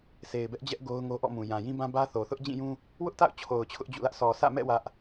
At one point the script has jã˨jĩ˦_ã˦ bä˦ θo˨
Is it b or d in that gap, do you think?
b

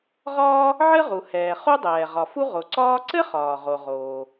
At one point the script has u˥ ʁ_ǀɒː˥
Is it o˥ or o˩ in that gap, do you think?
o˩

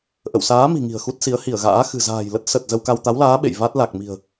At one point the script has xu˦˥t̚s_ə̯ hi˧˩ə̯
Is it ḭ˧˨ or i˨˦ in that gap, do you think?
i˨˦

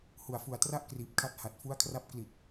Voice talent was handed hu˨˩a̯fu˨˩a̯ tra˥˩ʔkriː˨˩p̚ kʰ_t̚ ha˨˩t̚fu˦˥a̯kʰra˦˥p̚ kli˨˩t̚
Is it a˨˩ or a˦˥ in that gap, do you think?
a˦˥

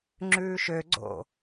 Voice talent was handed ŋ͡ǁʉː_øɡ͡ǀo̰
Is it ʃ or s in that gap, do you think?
ʃ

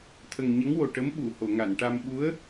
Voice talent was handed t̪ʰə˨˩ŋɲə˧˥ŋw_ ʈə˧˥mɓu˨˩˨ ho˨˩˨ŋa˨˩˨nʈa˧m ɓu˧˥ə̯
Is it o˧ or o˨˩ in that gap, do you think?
o˨˩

